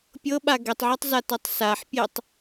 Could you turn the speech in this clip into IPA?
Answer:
pʲ ɤ ɓ a ɡ ɛ tˤ ʕ o tˤ z a t ɤ tˤ s a ħ pʲ e tˤ

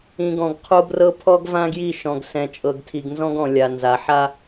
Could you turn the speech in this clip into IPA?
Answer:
ĩ˨ ɡ ɔ̃˨ ɡ qʰ o˦ b r ɤ˦ pʰ ɔ˦ ɡ v ã˦ ɡ j i˦˨ ʃ ɔ̃˨ ɡ s ɛ̃˨ t͡ʃʼ ɤ˨ ɡ tʰ i˨ ɡ n z ɔ̃˦ ɡ ɔ̃˨ lʲ a˨ n z a˨ ħ a˦

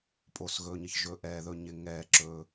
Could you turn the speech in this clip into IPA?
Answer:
pʼ o˩ s ɣ ɵː˩ ɲ ɪ˩ ç ʒ ɵ˩ ʔ ɛː˩ ð ɵ˩ ɲ ɪ˩ ŋ ɛː˩ ǁ ɵː˩

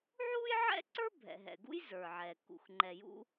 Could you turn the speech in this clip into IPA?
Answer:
ʕ uː˥ j ʕ ɛ̰˥ ǀ ə˞˥ bʱ ɛ̰˩ ɦ ɛ̰˩ ɡ ṵ˥ j z ə˞˩ ʕ ɛː˩ k ṵ˩ x ŋ͡ǃ ɛ˩ j ṵ˥

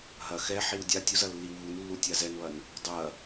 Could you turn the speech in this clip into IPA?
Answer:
ɦ ɐ x ɛ ħ i w dʲ a tʲ u z ɐ lː i w β u n lː u tʲ a z ɛ n β ɐ n | dˤ ɐ

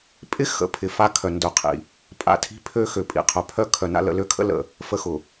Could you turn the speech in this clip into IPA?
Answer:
pʼ ɪ˦ x ə̰˨ pʰ ɪ˨ f a˦ kʰ œ˨ n d œ˨ qʰ ḭ˨ | pʼ a̰˨˦ tʰ i̤˦ pʰ ø˦ x ø˨ pʼ ḭ˨ qʰ œ˨ pʰ œ˦ kʰ œ˨ n a̰˦ l ə̰˨ l ø˦ kʰ ə̰˦ l ə̰˨ | f ə˦ x ʊ˨

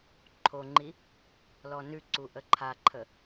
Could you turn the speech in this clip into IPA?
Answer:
ǃʰ o ŋ͡ǃ i | l ɔ n ʉ ǀ u ʔ ə ǃʰ a ǃʰ ə

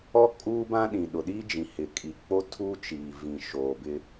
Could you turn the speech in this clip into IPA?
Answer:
ɔ˦ kʼ uː˦ b ã˦ ɗ ĩ˨ ɗ ʊ˨ ɗ iː˦ d͡ʒ ĩ˨ h ɪ˨ kʼ i˨ k͡p o˦ tʰ uː˦ t͡ʃ iː˨ v ĩ˨ ʃ oː˨ b ɪ˦

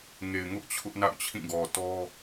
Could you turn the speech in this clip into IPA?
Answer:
ŋ e˨ ɪ̯ ŋ ʊ˦ ʔ t͡ɕʰ ʊ˦ ʔ n a̰˦˨ ʊ̯ t͡ɕʰ ĩ˦˨ ɡ ɔ˨ t ɔ˦

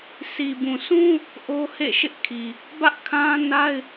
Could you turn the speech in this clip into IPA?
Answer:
sʰ i˨ b ũ˨ sʰ ũ˦ | ʔ o˦ h ḛ˦˨ ʃ ɪ˦ ʔ kʰ i˨ | b ä˦ ʔ kʰ ã˦ n a˦ ɪ̯

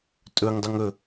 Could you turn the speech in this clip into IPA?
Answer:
tʼ ɵ ŋ dˤ u ŋ ɵ

